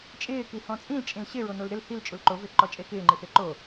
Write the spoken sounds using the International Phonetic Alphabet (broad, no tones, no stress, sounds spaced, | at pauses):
t͡ʃʼ ɪː k i h ɔ̃ t͡sʼ ĩ l t͡ʃʼ ĩ l ɕ ɪ ɹ o n o l ɾ ɪ l h i l t͡ʃʼ u l ǃ o v e ǃ ɔ t͡ʃʼ e k ɪː ŋ͡ǃ i θ e ǃ o